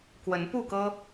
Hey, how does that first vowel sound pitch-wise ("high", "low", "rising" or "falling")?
rising